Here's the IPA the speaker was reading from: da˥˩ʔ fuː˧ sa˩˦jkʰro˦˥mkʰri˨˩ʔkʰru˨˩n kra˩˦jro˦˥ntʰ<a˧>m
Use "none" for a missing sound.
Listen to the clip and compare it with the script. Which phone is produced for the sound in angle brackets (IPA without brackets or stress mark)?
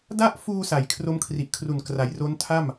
a˥˩